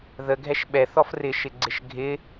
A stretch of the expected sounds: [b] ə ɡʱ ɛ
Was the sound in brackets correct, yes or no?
no